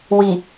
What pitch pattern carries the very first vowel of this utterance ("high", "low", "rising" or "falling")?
low